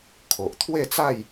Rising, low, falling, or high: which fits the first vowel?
low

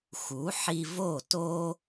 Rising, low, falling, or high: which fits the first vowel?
rising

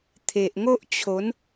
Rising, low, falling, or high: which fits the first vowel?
low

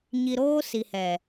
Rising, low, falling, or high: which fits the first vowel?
low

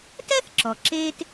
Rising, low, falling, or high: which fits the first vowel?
high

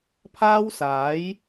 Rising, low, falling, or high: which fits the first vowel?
high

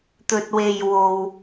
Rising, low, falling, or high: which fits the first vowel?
low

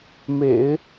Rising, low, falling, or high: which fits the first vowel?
low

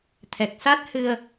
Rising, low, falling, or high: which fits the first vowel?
low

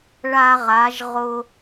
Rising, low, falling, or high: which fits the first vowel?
high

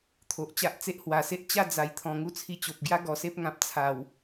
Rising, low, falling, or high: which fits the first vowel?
low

